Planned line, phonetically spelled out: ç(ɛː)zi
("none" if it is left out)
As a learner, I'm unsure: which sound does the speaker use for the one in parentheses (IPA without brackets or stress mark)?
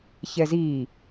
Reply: ɛ